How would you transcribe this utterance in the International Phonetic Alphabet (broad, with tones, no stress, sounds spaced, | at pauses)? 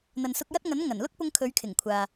n̪ ɐ˨ n s ʊ˧ k̚ j ɐ˥ t̚ ŋ ɐ˨˥ n ŋ ɐ˨˩ n l ʊ˥ k̚ p ʊ˧ ŋ kʰ ɵ˨˧ ɥ kʰ ɪ˨˩ ŋ kʷʰ aː˨